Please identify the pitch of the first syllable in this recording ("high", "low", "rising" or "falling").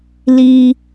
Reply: low